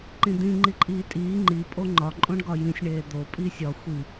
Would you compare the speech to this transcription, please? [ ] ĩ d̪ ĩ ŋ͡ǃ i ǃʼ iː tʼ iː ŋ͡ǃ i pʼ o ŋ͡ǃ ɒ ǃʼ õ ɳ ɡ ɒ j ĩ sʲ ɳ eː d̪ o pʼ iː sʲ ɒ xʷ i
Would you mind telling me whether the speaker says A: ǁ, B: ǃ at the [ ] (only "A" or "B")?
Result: B